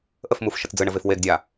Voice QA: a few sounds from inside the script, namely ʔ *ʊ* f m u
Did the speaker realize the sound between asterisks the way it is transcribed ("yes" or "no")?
no